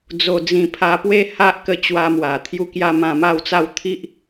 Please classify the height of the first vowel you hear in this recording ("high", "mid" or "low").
mid